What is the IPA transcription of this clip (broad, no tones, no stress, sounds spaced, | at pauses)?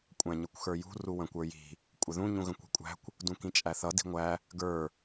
kʷʼ æ̃ ɲ ə kʷ x ə˞ j ṳ r u w ə̃ kʷ ə˞ j i̤ | kʷʼ ə ð ũ ɲ ũ ɣ ə̃ kʷ i̤ kʷʼ æ̤ kʷ | d ũ k ĩ t͡ʃʼ æ θ ʌ d i̤ ŋʷ æ | ɡ ə˞